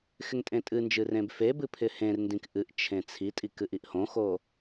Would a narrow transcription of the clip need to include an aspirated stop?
yes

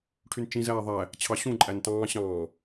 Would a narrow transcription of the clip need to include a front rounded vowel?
yes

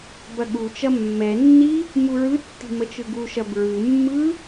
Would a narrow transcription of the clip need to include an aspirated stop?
no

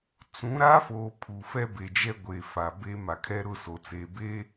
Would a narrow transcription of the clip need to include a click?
no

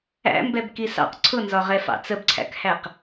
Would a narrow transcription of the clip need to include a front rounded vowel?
no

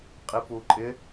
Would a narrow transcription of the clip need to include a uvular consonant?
yes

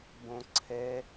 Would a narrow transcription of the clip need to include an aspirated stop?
yes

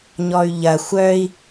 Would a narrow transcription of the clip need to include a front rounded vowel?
yes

